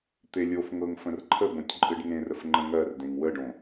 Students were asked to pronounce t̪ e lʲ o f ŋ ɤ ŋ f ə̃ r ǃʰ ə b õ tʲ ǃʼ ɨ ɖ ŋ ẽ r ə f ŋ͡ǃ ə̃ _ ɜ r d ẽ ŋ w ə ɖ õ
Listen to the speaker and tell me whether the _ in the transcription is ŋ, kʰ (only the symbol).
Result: ŋ